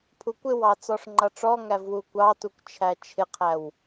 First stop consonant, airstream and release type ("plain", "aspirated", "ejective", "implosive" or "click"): aspirated